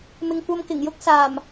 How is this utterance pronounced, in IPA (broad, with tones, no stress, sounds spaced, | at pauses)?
m ɪ˨ ŋ kʷ ɐ˧ m k ɪ˨˩ ŋ j ʊ˥ k̚ s aː˨˩ m